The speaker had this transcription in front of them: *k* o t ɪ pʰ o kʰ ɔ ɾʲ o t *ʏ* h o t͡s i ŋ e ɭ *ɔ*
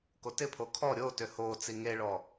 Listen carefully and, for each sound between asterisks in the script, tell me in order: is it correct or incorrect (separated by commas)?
correct, correct, correct